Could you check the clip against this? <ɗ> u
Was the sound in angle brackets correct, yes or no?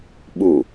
no